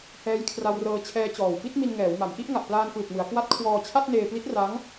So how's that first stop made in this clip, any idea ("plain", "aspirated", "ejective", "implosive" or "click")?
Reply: aspirated